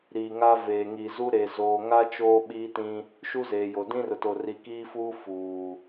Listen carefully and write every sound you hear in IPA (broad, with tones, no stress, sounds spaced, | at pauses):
ɾ iː˨ ŋ a˦ v eː˨ ŋ i˨ z u˦ ɾ e˨ z oː˨ ŋ a˦ t͡ʃ oː˦ ɓ iː˦ t ĩ˦ | ʃ u˦ z eː˨ j o˨ d ĩ˦ r ʊ˨ t o˨ r i˨ k iː˦ f uː˦ f uː˨